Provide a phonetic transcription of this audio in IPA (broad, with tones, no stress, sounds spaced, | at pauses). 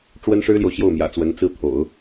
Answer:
ʈ͡ʂ w ə˥ n ʂ ɻ̩˥ l j o˨ ʊ̯ ɕ j o˥˩ ʊ̯ m j ä̰˨˩ t͡s w ə˧˥ n t͡s ɹ̩˥˩ t̪ʰ o̰˨˩˦ ʊ̯